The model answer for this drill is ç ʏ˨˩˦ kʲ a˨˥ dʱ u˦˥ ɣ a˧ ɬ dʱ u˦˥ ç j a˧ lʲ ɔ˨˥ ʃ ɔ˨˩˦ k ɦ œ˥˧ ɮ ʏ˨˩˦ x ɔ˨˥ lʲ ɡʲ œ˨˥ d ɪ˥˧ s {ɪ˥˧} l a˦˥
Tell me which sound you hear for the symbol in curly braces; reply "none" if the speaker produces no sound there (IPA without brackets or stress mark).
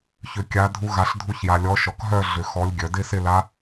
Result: ɪ˥˧